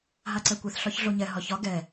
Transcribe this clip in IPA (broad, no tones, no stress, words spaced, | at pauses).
ɦaǀɛkʷɛθ ɬɒçɮoɲɛ ɦɒçɒ ɡɛ